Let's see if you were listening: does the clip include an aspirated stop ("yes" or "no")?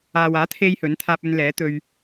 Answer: yes